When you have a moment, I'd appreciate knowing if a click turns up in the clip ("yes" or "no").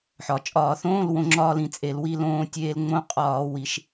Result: yes